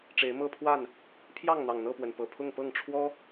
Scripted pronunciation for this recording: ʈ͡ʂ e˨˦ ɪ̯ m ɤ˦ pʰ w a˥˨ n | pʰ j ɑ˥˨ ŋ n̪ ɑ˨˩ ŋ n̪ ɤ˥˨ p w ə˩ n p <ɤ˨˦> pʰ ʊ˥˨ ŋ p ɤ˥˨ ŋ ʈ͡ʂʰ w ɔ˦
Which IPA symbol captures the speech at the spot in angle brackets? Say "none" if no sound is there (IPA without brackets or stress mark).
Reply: ɤ˨˩